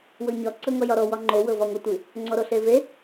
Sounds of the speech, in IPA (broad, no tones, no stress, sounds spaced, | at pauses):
w ɤ ɲ ɒ ǀ ɤ ŋ ɔ j ɒ ɾ ɔ w ɒ ŋ͡ǃ o w ɤ v ɒ ŋʷ ɤ tʷ ɨ | ŋ͡ǀ ɔ ɾ o ɬ e v e